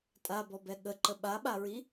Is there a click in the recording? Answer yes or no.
yes